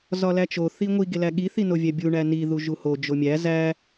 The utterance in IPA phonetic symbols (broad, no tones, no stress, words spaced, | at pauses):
zɒlæt͡ʃo θiŋʷi ɡelæɠi θinovʲæbʲu ɳæni ðuʒuho d͡ʒomʲæ zæ